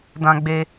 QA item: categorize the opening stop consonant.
plain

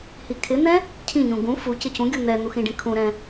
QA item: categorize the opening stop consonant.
aspirated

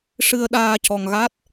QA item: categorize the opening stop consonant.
implosive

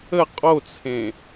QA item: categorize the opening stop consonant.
ejective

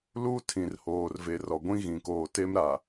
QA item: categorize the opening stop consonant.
aspirated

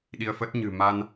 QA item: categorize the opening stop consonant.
implosive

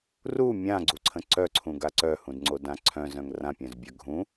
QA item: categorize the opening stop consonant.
click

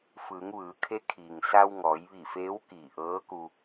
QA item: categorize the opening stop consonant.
aspirated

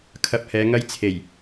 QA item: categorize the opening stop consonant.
aspirated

